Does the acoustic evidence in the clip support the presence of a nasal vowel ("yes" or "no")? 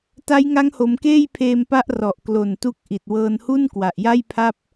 no